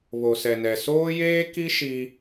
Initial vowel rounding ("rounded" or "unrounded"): rounded